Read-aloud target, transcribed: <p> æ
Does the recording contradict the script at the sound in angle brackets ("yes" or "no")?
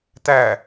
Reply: yes